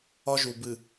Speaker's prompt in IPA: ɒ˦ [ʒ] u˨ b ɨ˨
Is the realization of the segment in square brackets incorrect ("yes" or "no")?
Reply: no